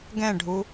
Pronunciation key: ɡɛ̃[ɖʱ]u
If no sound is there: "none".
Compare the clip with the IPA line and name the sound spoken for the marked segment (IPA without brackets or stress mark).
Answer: ɖʱ